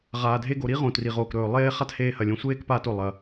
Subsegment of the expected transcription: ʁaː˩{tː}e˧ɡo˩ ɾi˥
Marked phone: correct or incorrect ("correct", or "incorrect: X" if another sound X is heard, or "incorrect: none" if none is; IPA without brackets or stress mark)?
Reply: incorrect: dʱ